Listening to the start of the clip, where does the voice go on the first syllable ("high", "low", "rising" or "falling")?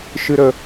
low